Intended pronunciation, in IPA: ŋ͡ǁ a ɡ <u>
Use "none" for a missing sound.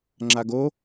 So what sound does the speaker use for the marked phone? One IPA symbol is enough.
o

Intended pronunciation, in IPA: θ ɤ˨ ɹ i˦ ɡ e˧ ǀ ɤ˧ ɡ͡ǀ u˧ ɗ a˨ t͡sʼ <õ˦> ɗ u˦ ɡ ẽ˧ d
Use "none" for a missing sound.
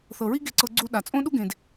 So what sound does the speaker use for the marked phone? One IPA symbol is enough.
õ˦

